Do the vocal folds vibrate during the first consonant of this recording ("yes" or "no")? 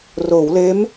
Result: yes